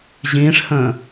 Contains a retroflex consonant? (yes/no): yes